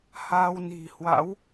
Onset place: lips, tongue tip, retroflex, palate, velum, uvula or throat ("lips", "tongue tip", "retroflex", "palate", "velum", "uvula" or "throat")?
throat